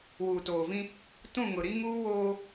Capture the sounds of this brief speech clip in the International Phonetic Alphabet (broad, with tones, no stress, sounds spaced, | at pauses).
w uː˨ t oː˨ v ĩ˦ | t ũ˦˨ ŋ ʊ˨ ɾ i˦ ŋ uː˦ w oː˦